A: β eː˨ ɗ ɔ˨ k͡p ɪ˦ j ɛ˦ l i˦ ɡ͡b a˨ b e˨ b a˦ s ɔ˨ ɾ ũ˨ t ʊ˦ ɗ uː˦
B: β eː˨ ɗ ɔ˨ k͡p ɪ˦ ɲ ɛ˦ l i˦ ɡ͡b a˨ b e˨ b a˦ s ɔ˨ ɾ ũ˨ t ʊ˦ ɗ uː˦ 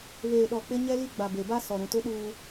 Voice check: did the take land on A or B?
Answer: B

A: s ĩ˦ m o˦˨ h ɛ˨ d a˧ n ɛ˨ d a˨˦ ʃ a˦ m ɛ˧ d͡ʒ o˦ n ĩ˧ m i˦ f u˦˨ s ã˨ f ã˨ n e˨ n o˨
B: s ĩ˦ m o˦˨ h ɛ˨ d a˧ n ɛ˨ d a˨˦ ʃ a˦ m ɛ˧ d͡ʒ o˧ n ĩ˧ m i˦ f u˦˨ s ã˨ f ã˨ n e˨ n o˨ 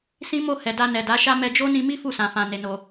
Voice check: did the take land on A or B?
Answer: A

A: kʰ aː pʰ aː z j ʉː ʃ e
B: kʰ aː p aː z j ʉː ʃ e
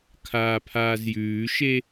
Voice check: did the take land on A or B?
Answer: A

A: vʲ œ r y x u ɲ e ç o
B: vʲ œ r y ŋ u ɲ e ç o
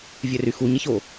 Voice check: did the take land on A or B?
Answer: A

